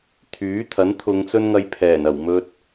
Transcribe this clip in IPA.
t̪ʰ yː˨˥ t̪ʰ ɐ˨˥ n t̪ʰ ʊ˨˧ ŋ t͡s ɵ˥ n ŋ ɐ˧ j pʰ ɛː˨˩ n ɐ˨˩ w m ɵ˧ t̚

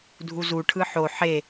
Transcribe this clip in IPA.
dʱ u z u ʈʰ ɯ ħ o ħ e

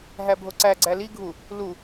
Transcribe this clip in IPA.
ɦ æ bʱ o ǀ æ ɡ͡ǀ æ l i ɡʱ u | l u

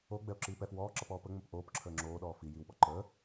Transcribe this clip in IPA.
o ɡ͡b ɛ o̯ ǁ iː p ɛ f w ɔː ǁ ʌ p ɔː p ə ŋ͡m ə p ʔ oː p ǁʰ əː ŋ͡ǁ oː ɗ ɔː f i j i w ɓ ɔ ǃ əː

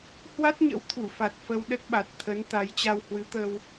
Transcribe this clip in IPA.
h w a˦˥ t̚ ɲ ə̰˧˥ w t̪ʰ u˧˩ f a˨˩ t̚ f ə˧ w ɗ ə˦˥ t̚ ɓ a˨˩ t̚ t̪ʰ ə˨˦ n t̪ a˨˦ j t͡ɕ a˧ w h w ɨ˨˦ t̪ əː˧ w

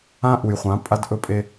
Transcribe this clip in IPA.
ã˦ ʔ u˨ j χʷ ã˨˦ pʼ a˦ d ʔ ɵ˦ pʼ e˦

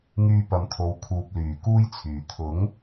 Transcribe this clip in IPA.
ŋ yː˧ p ɐ˨˧ m t̪ʰ o˨˧ w kʰ uː˨ p̚ l yː˨˩ k uː˥ j t͡sʰ yː˨ t̪ʰ ʊ˨˥ ŋ

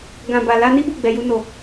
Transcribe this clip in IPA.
ɡ ã˨ b a˨ l a˧ n i˦ b u˦˨ ɡ͡b ɛ˨ j u˧ n o˨

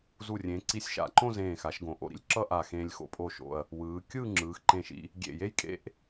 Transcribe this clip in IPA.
z u˧˩ rʲ ẽ˩˧ ǀ i˧ sʲ ʃ a̰˧˩ ǃ õ˥˧ z ẽː˧˩ x a˩˧ ʃ ɡ õ˩˧ ʔ o̰˧˩ ɾ ḭ˥ lʲ ǁ ʌ˥ ʔ a˧˩ x ẽː˧ lʲ x o̰˧ pʼ o˧˩ ʃ o̰˧˩ ɐ̯ | w ɯː˩˧ kʲ ɯː˥˧ ŋ͡ǁ ɯː˩˧ x ǃ ẽ˧˩ ʃ ḭ˧ | ɡʲ ḛ˧˩ j e˥ j kʼ ḛ˥ ʔ

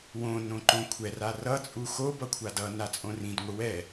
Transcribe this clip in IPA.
w õ n õ ǃ õ kʷʰ ɛ r a r ʌ t͡sʼ u x o b ʌ kʷʰ a d ʌ n a t͡sʼ õ r ĩ d ŋʷ ɯ w ɛ

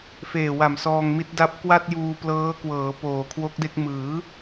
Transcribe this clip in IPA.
f eː˨˩ w a˨˩ m s ɔː˧ ŋ m i˦˥ t̚ d a˥˩ p̚ k w a˥˩ t̚ j uː˧ p l ɤː˦˥ k w ɤː˩˦ p oː˨˩ kʰ w o˦˥ k̚ d e˥˩ k̚ m ɯː˩˦

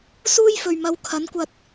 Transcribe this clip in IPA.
s uː˥ j f ɵ˨ ɥ m ɐ˨˧ w kʰ ɐ˨˥ n kʷ ɐ˧ t̚

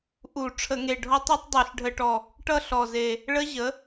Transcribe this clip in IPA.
ʔ u˧˩˧ ʈ͡ʂʰ ə˧˩˧ ŋ e˨˩ ɖʱ ɔ˦˥ tˤ ɔ˦˥ tˤ dˤ e˧˩˧ ɬ ɖʱ ə˧˩˧ ʈ ɔ˨˩ | ʈ ʌ˥˧ ɬ ɔ˨˩ z e˨˩ | ɭ ə˦˥ ʑ ə˩˥

